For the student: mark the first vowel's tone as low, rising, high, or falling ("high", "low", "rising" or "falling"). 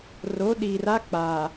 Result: rising